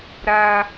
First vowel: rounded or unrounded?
unrounded